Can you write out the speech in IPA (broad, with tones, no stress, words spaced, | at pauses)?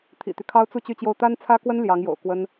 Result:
t̪ʰḭ˨˩t̪y˦kʰɑ˥ʊ̯t͡su˥˧ t͡ɕy˥˧t͡ɕjo˥˩ʊ̯ t̪a˥nt͡sʰä˥kwə˥n ljɑ˧˥ŋjo̰˨˩ʊ̯kwə˥n